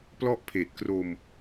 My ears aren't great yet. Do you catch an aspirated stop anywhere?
yes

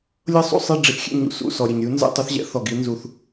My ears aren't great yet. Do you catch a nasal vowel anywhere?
no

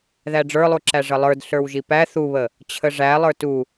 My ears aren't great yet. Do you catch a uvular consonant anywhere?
no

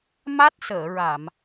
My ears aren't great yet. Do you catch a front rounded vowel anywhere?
no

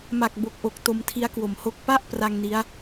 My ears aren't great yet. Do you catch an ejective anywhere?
no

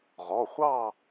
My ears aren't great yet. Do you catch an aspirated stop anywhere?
no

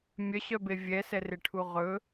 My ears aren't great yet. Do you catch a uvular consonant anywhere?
yes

